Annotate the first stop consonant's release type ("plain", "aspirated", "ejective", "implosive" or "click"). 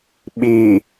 implosive